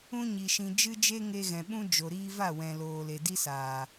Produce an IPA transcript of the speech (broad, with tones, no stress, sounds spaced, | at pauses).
ũ˦ ɲ i˨ ʃ ĩ˨ d͡ʒ ɨ˦ d͡ʒ e˦ ŋ e˧ ɣ ɛ̃˨ ɓ ũ˦ d͡ʒ o˨ ɾ iː˦ v a˦˨ w ɛ̃˨ l oː˨ l e˨ d i˦ s aː˨